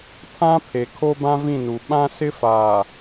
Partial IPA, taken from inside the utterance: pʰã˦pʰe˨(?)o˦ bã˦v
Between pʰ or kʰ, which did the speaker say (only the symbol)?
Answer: kʰ